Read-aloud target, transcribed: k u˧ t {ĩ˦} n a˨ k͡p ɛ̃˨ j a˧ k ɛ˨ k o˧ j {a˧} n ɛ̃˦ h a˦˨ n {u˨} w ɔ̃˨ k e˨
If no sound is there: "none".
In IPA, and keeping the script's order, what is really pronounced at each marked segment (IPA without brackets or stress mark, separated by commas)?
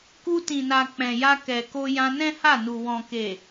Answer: ĩ˨, ã˧, u˨